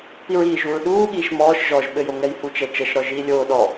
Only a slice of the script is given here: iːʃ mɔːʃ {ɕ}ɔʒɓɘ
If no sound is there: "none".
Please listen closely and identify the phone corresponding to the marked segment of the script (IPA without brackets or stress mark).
ʒ